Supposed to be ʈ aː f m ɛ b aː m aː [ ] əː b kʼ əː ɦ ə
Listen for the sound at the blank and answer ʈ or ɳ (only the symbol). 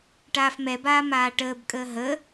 ʈ